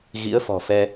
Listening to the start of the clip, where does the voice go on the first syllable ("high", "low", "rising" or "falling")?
rising